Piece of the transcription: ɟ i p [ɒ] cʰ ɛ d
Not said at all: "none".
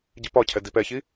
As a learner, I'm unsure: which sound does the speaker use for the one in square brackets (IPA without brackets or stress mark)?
ɒ